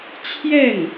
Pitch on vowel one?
falling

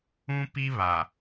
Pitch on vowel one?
high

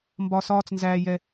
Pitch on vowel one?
low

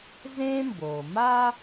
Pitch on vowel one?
high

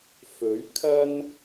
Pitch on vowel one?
rising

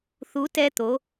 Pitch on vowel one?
rising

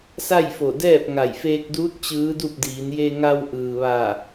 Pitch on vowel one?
falling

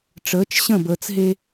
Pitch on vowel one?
rising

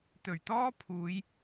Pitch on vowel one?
low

